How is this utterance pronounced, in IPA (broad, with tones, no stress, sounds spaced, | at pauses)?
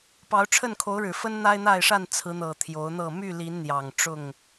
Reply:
p ɑ˨˦ ʊ̯ ʈ͡ʂʰ ə˥˨ n kʰ o˨˦ ʊ̯ ɻ ɻ̩˨˩ f ə˦ n n̪ a˦ ɪ̯ n̪ a˥˨ ɪ̯ ʂ a˥˨ n t͡sʰ ɹ̩˨˦ n̪ ɤ˨˩ t̪ʰ j o˨˦ ʊ̯ n̪ ɤ˥˨ m y˥˨ l i˨˦ n n̪ j ɑ˨˩ ŋ ʈ͡ʂ ʊ˥˨ ŋ